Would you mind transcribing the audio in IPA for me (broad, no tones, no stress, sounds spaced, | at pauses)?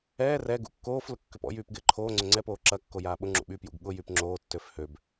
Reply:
ɛː r ɛ ɡ ṵ kː oː f l ʊ kː ø p ɔ̰ j yː p ɡ ɪː ǃʰ oː ŋ͡ǀ ʏ ŋ͡ǀ ɛ p oː ǁ ɐ kː o j aː ɓ ʊ ŋ͡ǁ ṵ ɓ y p j ṵ ɡ ɠ ʊ j y p ŋ͡ǁ oː tː ø f h ø b